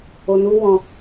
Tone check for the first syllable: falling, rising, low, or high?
low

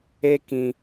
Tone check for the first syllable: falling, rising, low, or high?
high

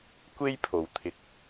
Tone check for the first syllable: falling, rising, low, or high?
high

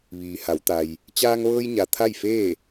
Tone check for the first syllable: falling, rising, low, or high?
low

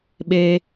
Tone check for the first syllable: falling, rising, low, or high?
high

